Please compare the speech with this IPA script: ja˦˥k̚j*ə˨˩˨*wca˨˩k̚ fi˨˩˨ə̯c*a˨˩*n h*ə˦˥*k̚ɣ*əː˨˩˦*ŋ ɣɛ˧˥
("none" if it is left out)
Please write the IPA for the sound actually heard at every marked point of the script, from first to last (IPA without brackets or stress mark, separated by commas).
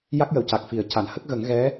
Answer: ə˨˩˨, a˨˩˨, ə˦˥, ə˨˩˦